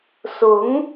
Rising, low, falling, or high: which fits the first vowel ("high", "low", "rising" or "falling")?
rising